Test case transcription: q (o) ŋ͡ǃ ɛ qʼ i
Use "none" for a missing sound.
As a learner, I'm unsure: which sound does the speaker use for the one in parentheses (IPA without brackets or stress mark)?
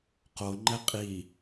o